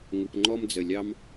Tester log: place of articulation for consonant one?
velar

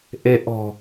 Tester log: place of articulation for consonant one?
glottal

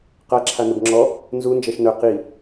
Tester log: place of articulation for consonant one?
uvular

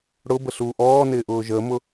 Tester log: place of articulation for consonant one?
retroflex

